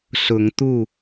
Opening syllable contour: rising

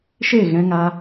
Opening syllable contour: falling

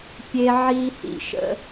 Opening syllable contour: high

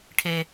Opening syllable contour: high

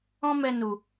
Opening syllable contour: high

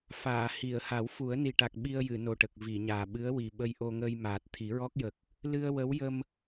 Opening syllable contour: low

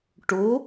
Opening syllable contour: rising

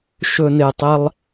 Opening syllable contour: low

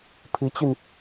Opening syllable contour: rising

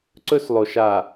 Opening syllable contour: high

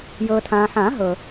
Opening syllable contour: low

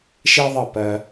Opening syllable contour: high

